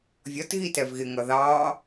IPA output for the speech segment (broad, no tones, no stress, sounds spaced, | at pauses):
vʲ ɒ t ɣ i t ɛ v ɣ ɪ ŋ ʌ ð ɑ